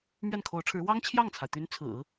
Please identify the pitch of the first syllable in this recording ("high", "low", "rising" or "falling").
falling